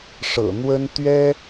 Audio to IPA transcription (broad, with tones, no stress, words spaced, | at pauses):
ʂɤ̰˨˩n̪wə˥n t̪ɥɛ˥